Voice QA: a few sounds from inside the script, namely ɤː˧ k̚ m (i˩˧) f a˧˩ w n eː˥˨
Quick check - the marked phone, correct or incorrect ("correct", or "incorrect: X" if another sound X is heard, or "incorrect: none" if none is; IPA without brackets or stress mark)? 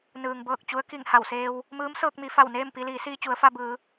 correct